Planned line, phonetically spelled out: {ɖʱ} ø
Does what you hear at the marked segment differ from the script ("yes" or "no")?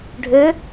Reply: no